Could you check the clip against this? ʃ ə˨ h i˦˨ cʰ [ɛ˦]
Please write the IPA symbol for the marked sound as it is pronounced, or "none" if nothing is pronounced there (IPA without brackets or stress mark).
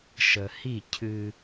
ɨ˦